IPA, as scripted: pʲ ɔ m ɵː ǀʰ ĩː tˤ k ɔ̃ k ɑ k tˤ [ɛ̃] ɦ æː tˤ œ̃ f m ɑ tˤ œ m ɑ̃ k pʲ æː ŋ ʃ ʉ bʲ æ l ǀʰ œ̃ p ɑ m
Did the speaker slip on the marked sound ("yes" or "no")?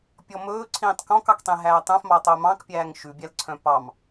yes